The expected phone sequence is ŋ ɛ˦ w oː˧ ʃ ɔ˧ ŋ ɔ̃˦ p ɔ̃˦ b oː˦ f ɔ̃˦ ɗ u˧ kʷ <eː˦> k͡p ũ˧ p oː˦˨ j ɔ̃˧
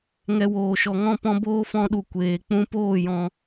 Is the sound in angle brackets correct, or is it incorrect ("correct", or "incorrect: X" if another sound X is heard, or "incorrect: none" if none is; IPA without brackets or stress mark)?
incorrect: eː˨